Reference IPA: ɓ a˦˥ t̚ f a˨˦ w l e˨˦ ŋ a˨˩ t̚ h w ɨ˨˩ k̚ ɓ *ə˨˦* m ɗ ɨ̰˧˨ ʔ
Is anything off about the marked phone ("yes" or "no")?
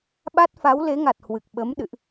no